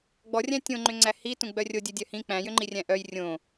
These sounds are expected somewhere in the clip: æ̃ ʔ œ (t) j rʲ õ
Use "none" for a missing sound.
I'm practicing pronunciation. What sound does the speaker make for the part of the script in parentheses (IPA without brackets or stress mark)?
none